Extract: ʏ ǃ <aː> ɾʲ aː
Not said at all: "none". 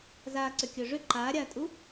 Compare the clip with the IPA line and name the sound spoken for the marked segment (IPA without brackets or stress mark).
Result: aː